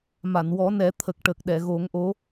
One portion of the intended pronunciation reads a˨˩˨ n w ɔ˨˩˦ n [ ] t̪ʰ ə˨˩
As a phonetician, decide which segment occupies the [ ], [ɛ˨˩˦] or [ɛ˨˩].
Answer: ɛ˨˩˦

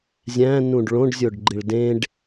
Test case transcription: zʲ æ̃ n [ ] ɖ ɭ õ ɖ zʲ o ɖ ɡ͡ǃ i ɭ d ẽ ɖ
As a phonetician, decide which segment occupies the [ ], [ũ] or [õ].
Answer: ũ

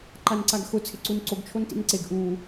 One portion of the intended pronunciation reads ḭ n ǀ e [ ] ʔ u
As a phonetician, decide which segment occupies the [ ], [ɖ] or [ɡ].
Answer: ɡ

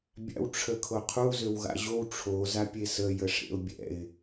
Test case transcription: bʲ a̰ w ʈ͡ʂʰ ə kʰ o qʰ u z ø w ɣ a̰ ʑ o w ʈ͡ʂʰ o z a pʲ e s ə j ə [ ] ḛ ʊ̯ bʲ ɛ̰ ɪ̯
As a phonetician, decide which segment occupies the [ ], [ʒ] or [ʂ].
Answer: ʂ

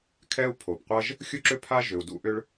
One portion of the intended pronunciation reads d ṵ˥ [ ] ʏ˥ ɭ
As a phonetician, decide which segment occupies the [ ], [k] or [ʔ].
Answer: ʔ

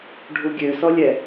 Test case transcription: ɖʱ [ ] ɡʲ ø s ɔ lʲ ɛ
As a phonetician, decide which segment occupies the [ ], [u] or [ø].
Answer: u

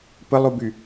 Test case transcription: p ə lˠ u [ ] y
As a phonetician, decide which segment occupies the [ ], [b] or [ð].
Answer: b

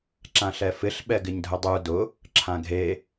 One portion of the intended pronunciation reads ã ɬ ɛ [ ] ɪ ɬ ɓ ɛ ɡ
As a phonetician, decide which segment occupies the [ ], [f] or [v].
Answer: f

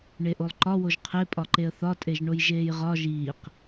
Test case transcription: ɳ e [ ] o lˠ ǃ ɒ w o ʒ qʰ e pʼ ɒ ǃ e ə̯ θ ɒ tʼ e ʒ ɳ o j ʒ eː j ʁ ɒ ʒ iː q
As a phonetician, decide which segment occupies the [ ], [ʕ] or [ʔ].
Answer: ʔ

